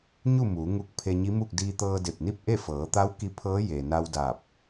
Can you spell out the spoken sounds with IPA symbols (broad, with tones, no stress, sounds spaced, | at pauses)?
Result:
ɲ u˥˨ m uː˩˧ ŋ u˧ k̚ pʰ e˧ ɲ i˧˥ m u˥˨ k̚ d iː˧ t̪ ɤː˧ d e˧˩ p̚ n i˥˨ p̚ ʔ e˥˨ f ɤː˩˧ t̪ a˧˥ w k i˧˥ pʰ ɤː˧˥ j e˩ n a˧ w d aː˧˩ p̚